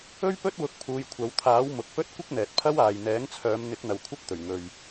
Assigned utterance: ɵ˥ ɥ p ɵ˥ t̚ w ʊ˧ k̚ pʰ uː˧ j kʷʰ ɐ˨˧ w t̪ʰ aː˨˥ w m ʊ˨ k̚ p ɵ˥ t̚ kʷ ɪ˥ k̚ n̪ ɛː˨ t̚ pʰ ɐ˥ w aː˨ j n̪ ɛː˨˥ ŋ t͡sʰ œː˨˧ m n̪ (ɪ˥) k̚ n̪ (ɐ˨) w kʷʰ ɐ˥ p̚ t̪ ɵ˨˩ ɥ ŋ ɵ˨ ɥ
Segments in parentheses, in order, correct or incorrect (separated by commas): incorrect, correct